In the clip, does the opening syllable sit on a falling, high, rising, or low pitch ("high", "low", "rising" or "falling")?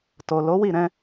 low